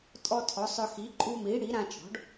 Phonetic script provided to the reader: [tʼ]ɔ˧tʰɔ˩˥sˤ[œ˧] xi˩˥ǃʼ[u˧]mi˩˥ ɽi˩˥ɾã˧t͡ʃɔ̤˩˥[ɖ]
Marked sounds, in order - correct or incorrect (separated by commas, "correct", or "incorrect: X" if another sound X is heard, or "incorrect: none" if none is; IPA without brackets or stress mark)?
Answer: correct, correct, correct, correct